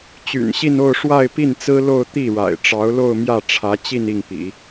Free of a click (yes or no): yes